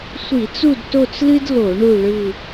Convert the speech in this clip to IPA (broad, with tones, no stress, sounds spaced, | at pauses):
sʷ i˧˩˧ t͡s u˦˨ d t o˦˨ t͡s l ɨ˦ d l o˧˩˧ ɳ u˦˨ ɭ ɯ˦˨